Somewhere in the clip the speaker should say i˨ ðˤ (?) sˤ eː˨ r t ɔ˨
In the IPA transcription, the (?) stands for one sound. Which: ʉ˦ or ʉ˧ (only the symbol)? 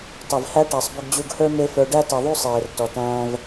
ʉ˦